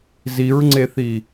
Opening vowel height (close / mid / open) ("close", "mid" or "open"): close